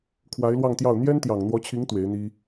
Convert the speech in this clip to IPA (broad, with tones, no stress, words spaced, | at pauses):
kʰwa˧˥ɪ̯lwɑ˥˧ŋt̪jɑ˥˩ʊ̯ n̪jɛ˥nt̪jɑ˨˩ŋn̪wɔ˧˥t͡ɕʰi˧˥ŋ t̪we˧˥ɪ̯n̪i˥